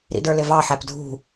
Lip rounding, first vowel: unrounded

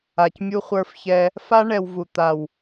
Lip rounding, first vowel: unrounded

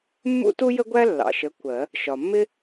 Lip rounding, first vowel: rounded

